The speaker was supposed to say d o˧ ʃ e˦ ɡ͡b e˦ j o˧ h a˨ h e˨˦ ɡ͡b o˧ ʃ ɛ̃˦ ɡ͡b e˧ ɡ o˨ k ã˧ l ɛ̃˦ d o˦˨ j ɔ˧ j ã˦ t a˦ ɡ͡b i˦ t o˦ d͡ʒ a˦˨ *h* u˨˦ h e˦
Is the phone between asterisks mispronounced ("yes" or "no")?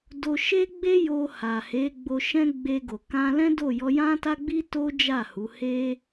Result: no